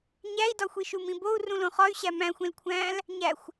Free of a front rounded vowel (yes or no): no